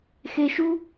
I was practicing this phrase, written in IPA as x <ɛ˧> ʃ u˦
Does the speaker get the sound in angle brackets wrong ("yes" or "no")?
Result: yes